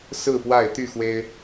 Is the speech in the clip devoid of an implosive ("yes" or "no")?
yes